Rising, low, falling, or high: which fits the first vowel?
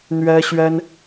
high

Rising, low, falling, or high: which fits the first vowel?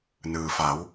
low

